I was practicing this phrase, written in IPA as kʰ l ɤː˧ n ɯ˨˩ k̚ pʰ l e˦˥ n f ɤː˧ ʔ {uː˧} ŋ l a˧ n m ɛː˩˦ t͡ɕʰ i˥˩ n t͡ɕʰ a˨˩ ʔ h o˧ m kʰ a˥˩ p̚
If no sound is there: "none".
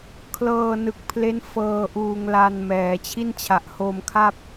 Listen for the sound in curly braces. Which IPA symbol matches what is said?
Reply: uː˧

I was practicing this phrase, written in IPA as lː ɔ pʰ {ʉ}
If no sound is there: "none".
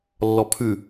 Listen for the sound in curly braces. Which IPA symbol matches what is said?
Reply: ʉ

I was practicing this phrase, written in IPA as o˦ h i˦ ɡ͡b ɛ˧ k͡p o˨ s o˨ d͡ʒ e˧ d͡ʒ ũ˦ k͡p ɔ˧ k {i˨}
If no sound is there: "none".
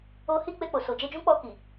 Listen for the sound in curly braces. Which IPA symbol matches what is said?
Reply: i˨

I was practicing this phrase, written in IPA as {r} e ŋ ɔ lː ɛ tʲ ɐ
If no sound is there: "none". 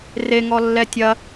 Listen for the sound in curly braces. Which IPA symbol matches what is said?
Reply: r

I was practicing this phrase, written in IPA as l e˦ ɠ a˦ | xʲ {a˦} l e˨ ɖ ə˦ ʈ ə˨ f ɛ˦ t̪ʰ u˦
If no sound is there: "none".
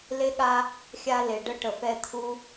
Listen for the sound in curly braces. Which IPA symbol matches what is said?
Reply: a˦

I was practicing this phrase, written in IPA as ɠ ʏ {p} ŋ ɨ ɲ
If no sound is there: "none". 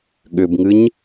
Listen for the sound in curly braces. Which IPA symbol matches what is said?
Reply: b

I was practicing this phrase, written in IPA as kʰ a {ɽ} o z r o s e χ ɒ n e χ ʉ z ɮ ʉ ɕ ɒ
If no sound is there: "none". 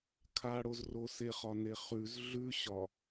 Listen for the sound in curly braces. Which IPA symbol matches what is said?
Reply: ɽ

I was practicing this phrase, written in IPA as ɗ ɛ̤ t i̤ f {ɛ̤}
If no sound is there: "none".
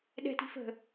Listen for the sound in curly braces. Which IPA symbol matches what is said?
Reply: ə̤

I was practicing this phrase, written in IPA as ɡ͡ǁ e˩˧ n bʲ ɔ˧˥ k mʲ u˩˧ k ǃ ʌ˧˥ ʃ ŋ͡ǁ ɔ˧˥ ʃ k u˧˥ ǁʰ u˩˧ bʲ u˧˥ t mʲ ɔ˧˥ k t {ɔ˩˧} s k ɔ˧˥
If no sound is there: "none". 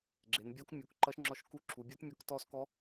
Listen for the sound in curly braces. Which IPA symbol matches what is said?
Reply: ɔ˧˥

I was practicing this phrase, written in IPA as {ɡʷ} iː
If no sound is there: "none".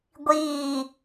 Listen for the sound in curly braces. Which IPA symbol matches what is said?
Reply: ɡʷ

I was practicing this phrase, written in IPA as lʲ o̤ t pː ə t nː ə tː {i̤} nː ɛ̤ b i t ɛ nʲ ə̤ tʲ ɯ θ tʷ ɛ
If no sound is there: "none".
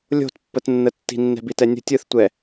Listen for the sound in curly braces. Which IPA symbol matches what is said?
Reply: i̤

